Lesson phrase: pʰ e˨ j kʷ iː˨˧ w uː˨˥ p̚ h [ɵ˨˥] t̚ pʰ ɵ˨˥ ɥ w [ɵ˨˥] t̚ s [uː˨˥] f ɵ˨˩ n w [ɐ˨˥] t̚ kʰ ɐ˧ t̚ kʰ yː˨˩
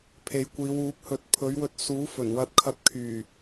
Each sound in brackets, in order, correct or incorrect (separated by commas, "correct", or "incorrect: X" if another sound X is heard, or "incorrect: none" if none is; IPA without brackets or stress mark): correct, incorrect: ɵ˧, correct, incorrect: ɐ˧